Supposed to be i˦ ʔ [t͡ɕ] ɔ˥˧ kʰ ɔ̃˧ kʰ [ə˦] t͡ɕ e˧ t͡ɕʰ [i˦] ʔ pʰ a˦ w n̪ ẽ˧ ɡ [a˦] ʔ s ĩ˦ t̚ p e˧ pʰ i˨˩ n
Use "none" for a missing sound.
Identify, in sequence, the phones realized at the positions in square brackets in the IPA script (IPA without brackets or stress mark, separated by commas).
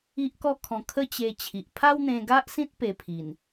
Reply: k, ə˦, i˨, a˦